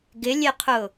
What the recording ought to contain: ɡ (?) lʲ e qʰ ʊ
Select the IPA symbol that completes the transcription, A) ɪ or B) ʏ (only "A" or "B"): A